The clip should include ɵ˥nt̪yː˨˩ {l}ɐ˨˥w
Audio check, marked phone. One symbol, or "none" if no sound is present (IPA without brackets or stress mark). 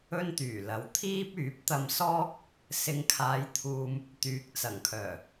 l